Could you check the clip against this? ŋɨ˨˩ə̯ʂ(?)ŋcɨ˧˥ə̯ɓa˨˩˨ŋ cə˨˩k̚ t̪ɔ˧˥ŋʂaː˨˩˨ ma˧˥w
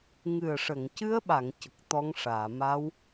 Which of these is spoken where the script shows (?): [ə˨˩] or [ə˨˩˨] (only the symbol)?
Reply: ə˨˩˨